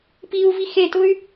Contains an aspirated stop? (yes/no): no